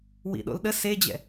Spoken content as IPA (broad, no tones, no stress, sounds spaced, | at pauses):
w ḭ ɗ o̰ l ɗ ə s e d͡ʑ ɛ̰